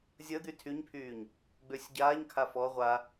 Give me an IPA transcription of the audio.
zʲəd̪y tʰyɲpʰyːɲ | ɡ͡bøsʲɟaːɲkʰa fɔ ʁʷa

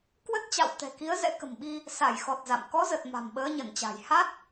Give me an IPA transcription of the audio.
kwə˦˥t̚t͡ɕa̰˧˨wt̪ɛ̤˨˩ ki˨˦ə̯zɛ̰˧˥kə̤˨˩mɓi˧ | sa˧˩jxɔ˨˩t̚ za̰˧˨m kɔ˨˦zə˨˩t̚ ma̤˨˩mɓəː˨˦ ɲə˧˩nt͡ɕa̤˨˩j ha˦˥t̚

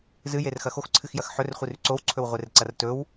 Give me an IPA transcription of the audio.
zɨjerxɐ xoxǀʰɨxjɐx ħɵrχʷirʉ ǀowǀʰɵwʁʷerǀɐr tɵw

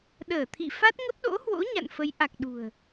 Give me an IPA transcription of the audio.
ɗəː˧˩t̪ʰḭ˧˨ fa˦˥t̚ŋə˦˥p̚ɗo̰˧˥hwo̰˧˥ ɲa̰˧˨nfə˨˦j ʔa˨˩k̚ɗṳ˨˩ə̯

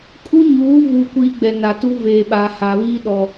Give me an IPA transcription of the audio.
kʼu˦ɲuː˨˦ vuː˨kʷiː˨ ɡ͡bɛ˨na˨ tu˦veː˨ɓaː˨ ha˨βiː˦ɗɔ˨

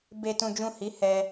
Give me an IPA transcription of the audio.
be˨tũ˨d͡ʒũ˨ hi˨˦hɛ˧

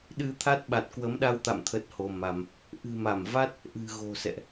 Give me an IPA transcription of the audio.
ɗɨ˧t̪ʰa˦˥t̚ ɓa˨˩t̚kwə˨˦mɗa˧wt̪a̰˧˨m t̪ʰə˦˥t̚ho˧ma˧m | ʔɨ̤˨˩ma˧˩mva˦˥t̚ | ʔɨ̤˨˩ɣo̤˨˩ sɛ̰˧˨ʔ

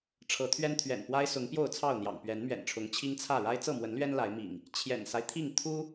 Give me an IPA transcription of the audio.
ʈ͡ʂʰɤ˨˦t̪ʰɥɛ˦n t̪ʰɥɛ̰˨˩npwa˦ɪ̯sʊ˨˦ŋ pjo˥˨ʊ̯t͡sʰɑ˥˨ʊ̯n̪jɑ̰˨˩ŋ pɥɛ˨˦nmɥɛ̰˨˩nʈ͡ʂʰʊ˨˦ŋ t͡ɕʰi˦ŋt͡sʰä˥˨ ɻa˦ɪ̯t͡sɤ˥˨mwə˨˦nlɥɛ˦n la˨˦ɪ̯mḭ˨˩ŋ | t͡ɕʰjɛ̰˨˩nsa˦ɪ̯t̪ʰi˥˨ŋ t̪ʰu˦

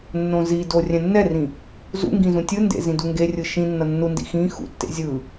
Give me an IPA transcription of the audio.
nːõzido rʲɛ̃nːɛrĩ | zṵŋɡĩ zũtʲɯndḛ zĩduŋɡerʲɯ ʃĩ nːʌnːundḭ xĩ xṵtːḛ zʲɯ

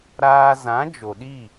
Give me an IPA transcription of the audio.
ɾaː˧zã˨˦ d͡ʒo˨ɗi˦˨

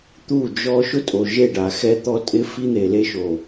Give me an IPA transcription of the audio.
t̪u˦˨d͡ʒɔ˦ ʃʊ˦tʼo˨ʒe˦˨ɖa˨ xɛ˦t̪ɔ˦ tʼɪ˦fi˦n̪e˨ le˦ʃo˨

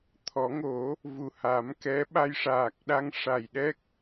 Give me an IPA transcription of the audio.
t̪ʰɔ˨˩˦ŋo˨˩˦ | vu˨˩ha˨˩˦mkɛ˧˥ ɓa˧jʂaː˨˩k̚ɗa˧˥ŋ ʂa˨˩jɗɛ˦˥k̚

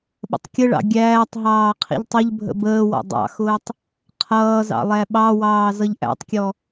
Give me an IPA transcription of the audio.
ɓə̰tˤkʲəɭɑ̰ ɡʲæːtˤɦɑː qʰḭʎtˤʊʎbʱə̰ bəːwɔ̰ dˤɑ̰xʊːtˤ | qʰʌːzɑ̰ lˠæɓɑwɑː zʌʎʔæ̰tˤkʲɔ

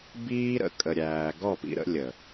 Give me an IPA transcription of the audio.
biː˦ɾə̰˧ kʼə˨ɾʲæː˨ ɡɔ˦˨pḭ˧ ɾə̰˦lʲə˨

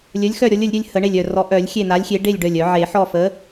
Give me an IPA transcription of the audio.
lʲœ˨˥lʲxœ˥˨ ɾʲɔ˨˥lʲə˨˩˦lʲɾʲœ˦lʲ hə˨˩˦ɳe˧˩lʲœ˧˩rɔ˨˥ ʔœ˨˩˦lʲ xʲe˥˨n̪a˨˥lʲxʲe˨˥ ɖe˥˨lʲ ɖœ˧˩lʲœ˨˩˦ ʕe˨˩˦ħɔ˥˨ fə˨˥

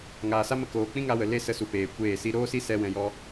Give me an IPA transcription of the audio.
ŋaː˨sa˦mə˧ koː˨ k͡pĩ˦ŋa˧wə˨ le˦sə˧su˨peː˨ kʷeː˦˨si˦ ɾoː˦si˦sɛ˧ wɛ̃˧jɔ˦

